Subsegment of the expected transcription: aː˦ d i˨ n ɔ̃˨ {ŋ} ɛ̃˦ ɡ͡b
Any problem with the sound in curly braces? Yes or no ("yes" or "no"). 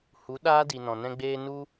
yes